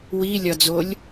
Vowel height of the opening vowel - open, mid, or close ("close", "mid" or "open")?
close